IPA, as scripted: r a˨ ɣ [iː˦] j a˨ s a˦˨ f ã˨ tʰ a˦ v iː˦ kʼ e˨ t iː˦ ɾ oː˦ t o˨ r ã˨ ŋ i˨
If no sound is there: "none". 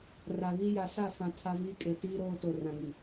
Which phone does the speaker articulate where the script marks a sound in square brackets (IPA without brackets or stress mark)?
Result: i˦